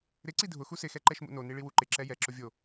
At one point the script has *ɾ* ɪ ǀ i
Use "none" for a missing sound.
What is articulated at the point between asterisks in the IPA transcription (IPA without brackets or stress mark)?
ɾ